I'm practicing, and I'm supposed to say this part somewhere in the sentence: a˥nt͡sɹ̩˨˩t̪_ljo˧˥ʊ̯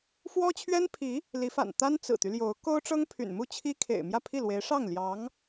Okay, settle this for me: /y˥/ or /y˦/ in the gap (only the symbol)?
y˦